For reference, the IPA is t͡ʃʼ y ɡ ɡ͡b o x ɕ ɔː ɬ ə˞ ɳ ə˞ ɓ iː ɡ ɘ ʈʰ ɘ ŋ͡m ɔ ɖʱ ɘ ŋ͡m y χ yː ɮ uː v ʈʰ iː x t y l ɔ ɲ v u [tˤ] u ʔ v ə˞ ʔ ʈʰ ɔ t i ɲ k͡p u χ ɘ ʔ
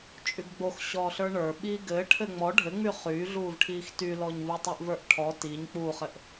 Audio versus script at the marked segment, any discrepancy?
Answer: no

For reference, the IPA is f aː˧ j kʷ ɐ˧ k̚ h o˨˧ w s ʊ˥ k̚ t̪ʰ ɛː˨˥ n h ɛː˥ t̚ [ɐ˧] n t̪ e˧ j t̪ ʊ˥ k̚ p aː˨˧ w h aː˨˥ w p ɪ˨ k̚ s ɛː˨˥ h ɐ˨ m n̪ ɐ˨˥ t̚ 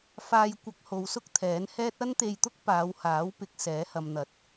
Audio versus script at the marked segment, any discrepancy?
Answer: yes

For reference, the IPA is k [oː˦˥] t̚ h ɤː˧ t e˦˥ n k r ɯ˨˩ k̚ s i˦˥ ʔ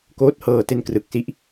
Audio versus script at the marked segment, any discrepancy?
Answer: no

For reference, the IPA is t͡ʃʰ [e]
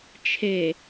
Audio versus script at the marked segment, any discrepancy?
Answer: no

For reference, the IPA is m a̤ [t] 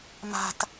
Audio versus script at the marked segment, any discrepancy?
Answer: no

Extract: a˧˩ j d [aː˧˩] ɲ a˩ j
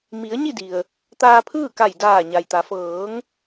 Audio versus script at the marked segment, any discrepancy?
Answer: no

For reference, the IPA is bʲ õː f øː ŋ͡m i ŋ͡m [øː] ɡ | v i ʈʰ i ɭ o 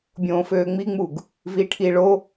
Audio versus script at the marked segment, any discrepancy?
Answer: yes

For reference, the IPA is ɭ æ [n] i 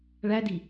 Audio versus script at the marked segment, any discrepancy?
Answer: yes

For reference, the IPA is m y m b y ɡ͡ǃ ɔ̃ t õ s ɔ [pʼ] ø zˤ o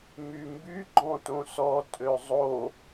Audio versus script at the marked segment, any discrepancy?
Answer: yes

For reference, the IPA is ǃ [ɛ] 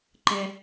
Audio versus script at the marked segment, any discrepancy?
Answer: no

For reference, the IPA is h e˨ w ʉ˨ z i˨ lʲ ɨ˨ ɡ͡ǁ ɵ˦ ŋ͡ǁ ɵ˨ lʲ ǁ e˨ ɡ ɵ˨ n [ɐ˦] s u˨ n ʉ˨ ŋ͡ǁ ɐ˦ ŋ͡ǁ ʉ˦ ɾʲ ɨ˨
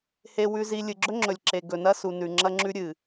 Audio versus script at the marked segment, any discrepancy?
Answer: no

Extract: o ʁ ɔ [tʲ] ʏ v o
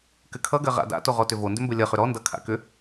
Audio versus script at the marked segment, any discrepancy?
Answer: yes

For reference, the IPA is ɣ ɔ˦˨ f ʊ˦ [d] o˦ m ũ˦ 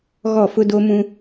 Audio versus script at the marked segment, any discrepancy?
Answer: no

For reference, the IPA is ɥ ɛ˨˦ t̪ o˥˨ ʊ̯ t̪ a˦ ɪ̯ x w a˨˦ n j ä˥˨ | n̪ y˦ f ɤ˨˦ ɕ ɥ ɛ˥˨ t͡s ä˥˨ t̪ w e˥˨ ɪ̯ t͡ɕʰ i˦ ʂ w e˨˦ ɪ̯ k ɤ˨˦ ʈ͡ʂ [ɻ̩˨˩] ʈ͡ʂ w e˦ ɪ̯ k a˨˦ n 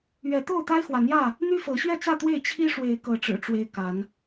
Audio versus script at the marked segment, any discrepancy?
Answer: no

